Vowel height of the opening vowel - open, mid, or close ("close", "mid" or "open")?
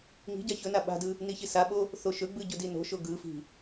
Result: close